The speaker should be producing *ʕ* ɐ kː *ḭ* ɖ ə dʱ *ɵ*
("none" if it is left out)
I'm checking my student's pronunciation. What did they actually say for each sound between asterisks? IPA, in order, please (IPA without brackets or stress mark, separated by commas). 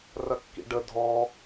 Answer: r, ḭ, ɔ